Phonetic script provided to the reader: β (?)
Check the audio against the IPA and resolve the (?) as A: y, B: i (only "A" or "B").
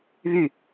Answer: A